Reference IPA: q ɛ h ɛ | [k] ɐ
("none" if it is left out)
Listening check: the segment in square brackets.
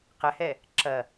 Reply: ǁ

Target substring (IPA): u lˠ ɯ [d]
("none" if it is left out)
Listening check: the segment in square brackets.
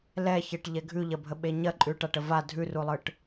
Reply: ʈ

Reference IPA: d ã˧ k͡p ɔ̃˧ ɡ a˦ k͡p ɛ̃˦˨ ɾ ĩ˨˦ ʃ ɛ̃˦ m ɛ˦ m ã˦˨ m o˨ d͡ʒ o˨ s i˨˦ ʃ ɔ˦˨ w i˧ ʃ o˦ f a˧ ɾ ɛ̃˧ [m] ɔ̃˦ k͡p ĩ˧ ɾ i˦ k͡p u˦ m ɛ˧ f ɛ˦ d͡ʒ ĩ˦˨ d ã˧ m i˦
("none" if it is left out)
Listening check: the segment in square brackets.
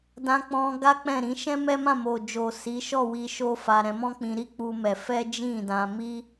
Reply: m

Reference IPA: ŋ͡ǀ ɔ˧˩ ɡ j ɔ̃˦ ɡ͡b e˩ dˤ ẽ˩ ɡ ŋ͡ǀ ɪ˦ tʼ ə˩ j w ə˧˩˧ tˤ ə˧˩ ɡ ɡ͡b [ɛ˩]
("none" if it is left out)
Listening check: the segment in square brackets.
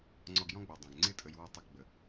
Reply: ə˩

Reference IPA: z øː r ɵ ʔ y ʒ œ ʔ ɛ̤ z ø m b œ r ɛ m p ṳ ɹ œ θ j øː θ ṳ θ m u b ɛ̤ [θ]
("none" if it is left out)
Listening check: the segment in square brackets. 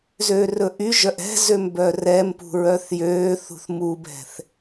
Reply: θ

